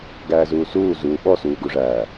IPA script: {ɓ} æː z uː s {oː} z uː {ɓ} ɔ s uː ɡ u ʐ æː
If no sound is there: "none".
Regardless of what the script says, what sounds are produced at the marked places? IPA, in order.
ɡ, uː, ɓ

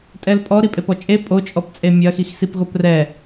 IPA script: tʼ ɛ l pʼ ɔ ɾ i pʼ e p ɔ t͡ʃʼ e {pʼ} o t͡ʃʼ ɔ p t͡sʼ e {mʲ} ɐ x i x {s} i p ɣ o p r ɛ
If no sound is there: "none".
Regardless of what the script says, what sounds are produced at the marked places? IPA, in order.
pʼ, mʲ, s

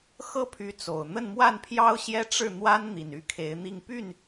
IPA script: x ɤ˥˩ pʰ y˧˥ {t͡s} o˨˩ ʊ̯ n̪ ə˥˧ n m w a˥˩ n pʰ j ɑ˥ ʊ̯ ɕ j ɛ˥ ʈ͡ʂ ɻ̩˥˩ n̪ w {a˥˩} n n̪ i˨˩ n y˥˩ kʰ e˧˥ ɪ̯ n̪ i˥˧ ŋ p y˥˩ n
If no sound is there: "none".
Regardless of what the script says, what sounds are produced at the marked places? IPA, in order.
t͡s, a˥

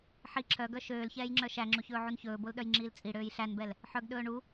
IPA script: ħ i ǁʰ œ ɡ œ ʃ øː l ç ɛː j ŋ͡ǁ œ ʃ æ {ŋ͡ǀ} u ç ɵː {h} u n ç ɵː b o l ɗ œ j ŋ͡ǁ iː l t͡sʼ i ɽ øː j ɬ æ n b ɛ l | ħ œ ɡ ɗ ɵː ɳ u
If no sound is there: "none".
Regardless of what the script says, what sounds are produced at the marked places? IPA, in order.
ŋ͡ǁ, ʕ

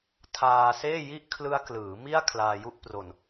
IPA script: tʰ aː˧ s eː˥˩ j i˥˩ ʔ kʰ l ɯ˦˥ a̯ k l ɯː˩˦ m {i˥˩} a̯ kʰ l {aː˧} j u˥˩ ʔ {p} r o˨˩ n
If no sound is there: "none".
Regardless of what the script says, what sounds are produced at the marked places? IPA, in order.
i˥˩, aː˧, p

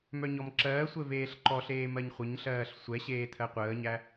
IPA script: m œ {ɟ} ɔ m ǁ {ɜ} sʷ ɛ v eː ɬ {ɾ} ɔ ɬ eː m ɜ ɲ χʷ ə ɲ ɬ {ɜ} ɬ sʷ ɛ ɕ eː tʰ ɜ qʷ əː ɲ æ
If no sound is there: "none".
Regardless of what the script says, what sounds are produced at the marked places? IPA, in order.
ɲ, ɜː, ǃ, ɜː

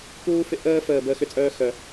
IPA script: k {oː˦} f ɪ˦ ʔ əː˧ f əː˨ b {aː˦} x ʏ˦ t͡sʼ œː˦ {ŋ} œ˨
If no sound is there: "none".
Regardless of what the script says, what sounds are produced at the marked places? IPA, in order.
uː˦, əː˦, x

